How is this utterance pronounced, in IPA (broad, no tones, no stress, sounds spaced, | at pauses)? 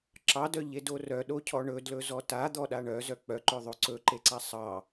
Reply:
ǁ ɑ d œ ʎ e d o r œ ɗ o cʰ ɔ ɳ ɵ d l ɵ z ɔ t a d̪ ɔ ɗ a ɳ œ z œ k͡p œ ǃ ɵ ðˤ o ǀ ɵ ǃ e ǀ a sˤ ɑ